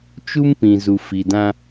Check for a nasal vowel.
present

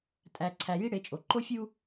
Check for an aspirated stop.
present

